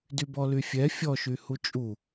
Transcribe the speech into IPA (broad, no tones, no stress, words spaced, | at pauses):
dybɔlyfʲɛ fʲɔʃy hut͡ʃʼu